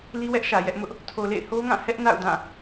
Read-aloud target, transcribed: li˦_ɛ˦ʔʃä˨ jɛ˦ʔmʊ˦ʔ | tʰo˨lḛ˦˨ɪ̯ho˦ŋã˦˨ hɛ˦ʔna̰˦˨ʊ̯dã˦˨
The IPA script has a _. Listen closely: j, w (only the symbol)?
w